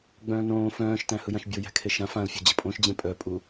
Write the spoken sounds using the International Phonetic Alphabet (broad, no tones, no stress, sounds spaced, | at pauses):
ɡ͡b œ̃ː n õː f œ̃ː ʃ t æ̃ h ɯ j ã ʃ bʲ o j æ̤ kʰ e ʃ ã f ã l fʲ o d͡ʑ ə pʼ õ ʃ d͡ʑ ẽ pʼ œ pʼ u